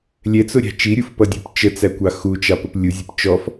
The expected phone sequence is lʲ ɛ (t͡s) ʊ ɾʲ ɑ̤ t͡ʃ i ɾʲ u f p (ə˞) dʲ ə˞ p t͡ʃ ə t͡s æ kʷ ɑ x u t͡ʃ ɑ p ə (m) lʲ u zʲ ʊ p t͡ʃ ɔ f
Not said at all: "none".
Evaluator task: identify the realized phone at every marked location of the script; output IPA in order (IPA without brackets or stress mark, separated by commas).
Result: t͡s, ʌ, p